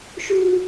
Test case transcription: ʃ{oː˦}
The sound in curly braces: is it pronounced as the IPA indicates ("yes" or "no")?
no